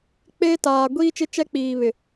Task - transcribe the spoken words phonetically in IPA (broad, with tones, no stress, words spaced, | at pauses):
k͡peː˦taː˨ ɡʷiː˦t͡ʃɪ˦ t͡ʃɛ˦k͡piː˨βɪ˨